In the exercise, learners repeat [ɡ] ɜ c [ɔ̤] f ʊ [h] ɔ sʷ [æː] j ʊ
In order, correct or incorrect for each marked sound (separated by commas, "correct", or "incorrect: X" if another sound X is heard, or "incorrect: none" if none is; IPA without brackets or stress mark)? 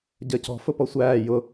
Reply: incorrect: ɟ, correct, incorrect: p, correct